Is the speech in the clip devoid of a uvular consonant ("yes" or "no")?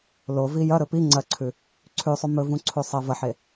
yes